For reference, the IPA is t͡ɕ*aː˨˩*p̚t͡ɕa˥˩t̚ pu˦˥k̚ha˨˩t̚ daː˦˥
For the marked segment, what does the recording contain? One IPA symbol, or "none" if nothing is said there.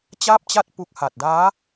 aː˥˩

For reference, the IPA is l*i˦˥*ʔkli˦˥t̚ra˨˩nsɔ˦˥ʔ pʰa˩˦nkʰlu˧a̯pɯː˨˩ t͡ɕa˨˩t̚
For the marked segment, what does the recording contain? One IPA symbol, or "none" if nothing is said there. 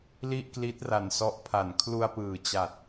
i˥˩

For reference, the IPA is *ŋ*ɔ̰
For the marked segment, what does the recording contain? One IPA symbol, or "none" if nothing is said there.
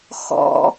x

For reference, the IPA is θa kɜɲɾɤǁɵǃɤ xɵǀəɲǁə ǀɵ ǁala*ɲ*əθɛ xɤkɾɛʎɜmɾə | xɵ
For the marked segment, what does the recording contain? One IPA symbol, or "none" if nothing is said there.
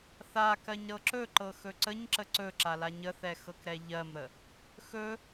ɲ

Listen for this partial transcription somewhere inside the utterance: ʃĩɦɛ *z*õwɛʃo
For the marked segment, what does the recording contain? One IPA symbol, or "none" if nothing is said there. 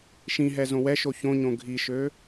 z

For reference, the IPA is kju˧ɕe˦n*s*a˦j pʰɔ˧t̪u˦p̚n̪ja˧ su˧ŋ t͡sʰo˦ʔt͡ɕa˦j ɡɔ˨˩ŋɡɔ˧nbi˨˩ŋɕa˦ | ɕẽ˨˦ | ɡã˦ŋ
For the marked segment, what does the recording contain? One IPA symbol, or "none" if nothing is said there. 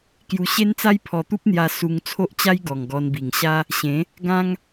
t͡s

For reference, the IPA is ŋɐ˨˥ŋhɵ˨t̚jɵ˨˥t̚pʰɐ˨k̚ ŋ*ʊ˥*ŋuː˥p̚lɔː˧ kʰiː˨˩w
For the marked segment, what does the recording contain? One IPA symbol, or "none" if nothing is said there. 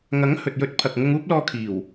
ʊ˧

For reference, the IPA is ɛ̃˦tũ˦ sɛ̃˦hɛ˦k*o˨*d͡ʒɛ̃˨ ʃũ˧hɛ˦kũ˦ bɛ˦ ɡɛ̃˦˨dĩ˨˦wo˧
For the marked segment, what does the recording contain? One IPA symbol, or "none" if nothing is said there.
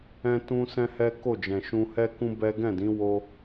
o˦˨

